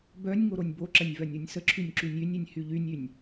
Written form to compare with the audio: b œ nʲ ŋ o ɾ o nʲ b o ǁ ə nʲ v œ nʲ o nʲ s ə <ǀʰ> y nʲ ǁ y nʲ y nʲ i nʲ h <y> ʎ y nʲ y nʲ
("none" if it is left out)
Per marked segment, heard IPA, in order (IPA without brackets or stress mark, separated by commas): ǁʰ, y